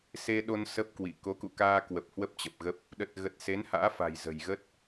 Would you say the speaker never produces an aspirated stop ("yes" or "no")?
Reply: yes